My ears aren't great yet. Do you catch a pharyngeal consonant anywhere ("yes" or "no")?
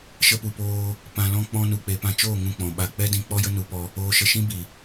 no